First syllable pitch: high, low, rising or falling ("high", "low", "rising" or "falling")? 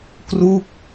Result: falling